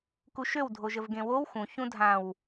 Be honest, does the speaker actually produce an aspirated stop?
no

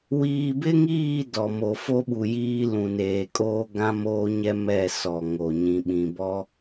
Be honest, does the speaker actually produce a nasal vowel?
yes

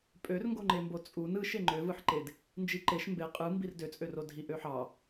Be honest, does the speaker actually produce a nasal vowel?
no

